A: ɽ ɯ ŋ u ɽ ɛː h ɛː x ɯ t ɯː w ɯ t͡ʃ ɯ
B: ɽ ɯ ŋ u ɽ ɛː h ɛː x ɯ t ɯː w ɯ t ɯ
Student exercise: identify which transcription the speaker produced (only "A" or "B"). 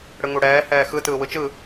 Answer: A